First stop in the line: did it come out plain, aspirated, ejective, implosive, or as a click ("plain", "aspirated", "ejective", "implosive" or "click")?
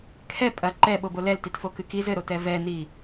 aspirated